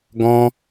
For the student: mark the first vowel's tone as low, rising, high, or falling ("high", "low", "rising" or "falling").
high